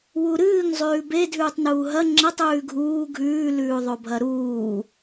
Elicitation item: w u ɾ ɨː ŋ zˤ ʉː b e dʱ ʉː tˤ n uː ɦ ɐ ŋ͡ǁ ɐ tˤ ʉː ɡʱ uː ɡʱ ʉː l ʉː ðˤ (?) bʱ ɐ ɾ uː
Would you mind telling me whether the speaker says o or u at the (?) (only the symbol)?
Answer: o